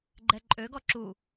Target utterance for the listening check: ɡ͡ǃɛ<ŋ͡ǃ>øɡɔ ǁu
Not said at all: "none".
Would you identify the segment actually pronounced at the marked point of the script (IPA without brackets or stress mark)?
ǃʼ